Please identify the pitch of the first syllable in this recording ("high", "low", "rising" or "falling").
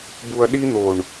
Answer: low